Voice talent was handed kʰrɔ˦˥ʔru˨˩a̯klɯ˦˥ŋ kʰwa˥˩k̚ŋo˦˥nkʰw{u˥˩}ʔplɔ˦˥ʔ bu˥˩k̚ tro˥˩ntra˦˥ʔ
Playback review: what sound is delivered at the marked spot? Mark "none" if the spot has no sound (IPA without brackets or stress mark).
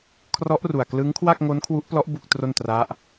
u˦˥